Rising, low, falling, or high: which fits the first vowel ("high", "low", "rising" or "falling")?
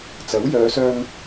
rising